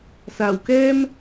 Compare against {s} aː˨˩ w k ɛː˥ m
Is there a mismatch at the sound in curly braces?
no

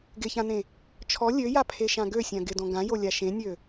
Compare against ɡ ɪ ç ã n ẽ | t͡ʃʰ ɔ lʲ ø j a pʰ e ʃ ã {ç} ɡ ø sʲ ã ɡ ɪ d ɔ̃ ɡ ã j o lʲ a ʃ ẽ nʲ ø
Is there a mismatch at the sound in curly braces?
yes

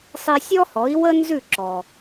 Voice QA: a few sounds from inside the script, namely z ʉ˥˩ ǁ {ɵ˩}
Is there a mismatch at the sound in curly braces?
yes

